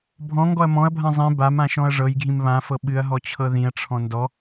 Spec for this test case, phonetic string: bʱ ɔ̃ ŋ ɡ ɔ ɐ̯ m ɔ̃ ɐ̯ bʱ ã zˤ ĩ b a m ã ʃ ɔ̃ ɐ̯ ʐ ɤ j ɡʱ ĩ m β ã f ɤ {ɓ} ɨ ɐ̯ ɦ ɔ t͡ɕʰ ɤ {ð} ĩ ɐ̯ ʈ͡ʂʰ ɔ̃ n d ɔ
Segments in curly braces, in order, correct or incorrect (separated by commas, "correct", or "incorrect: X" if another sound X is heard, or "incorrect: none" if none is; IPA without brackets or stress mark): correct, correct